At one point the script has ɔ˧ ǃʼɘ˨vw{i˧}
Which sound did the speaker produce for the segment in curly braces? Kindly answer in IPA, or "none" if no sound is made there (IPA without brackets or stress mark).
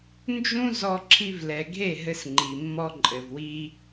i˧